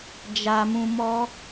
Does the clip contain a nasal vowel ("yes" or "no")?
yes